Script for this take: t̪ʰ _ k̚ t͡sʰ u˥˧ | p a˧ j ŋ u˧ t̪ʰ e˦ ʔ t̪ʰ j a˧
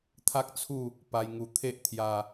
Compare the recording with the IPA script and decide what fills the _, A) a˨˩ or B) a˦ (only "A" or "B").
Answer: B